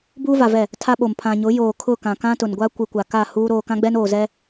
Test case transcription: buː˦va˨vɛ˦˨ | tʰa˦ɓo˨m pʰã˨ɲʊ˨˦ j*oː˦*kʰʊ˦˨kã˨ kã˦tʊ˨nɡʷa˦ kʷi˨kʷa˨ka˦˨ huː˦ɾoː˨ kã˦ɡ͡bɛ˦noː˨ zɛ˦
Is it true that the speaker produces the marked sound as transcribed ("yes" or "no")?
no